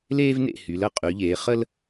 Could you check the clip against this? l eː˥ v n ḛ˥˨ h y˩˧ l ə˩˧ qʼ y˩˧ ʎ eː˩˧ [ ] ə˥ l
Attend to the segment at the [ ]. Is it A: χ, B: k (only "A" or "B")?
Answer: A